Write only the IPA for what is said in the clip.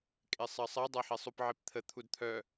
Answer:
kʼ e sˤ ɜ sˤ ɜ dˤ ɜ ħ e sˤ u p ʕ e p t̪ʰ ə t̪ʰ u d t̪ʰ œ

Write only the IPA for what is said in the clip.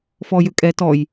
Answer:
f ɔ j ʏ kʼ ɛ t ɔ j

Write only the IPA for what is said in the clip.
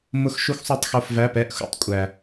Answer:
m ʊ˦˥ x ʃ u˦˥ x sˤ u˧˥˧ tˤ x o˧˥˧ f v æ˧˥˧ p ɛ˧˥˧ ʔ x ṵ˦˥ tˤ kʷʼ æ˨

